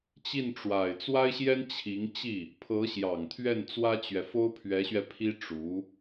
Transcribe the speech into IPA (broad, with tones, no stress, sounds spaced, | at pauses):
t͡ɕ i˥˩ n ʈ͡ʂ w a˨˩ ɪ̯ t͡s w a˥ ɪ̯ ɕ j ɛ˥ n t͡ɕʰ i˧˥ ŋ t͡ɕ i˥˩ | pʰ ɤ˧˥ ɕ j ɑ˨˩ ŋ t̪ʰ ɥ ɛ˥˩ n t͡s w ä˥ t͡ɕ ɥ ɛ˨ f o˥ ʊ̯ pʰ ɥ ɛ˧˥ ɕ ɥ ɛ˧ pʰ i˥ ʈ͡ʂ u˧˥